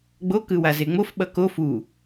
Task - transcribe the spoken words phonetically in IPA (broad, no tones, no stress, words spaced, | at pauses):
ɡ͡bo kɯwazeŋ͡mof ɓʌko fu